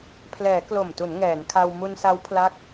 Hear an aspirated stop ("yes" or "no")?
yes